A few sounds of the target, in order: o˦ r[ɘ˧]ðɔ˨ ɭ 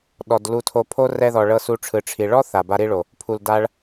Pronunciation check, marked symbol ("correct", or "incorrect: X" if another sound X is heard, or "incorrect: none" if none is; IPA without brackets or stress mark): incorrect: ɛ˧